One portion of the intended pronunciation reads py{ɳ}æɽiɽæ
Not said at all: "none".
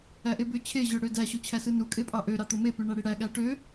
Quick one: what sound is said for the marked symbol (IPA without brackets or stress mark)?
ɳ